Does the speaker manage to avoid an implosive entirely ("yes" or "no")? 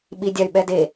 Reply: no